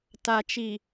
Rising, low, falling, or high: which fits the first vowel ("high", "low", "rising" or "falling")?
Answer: low